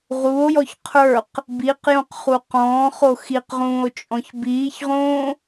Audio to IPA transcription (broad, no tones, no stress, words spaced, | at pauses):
ʁuo̯jɔç qʰə˞q | biqjõqχu qɔ̃ːχo xiqʁũːo̯t͡ʃʼɔ̃ç biːçʁõː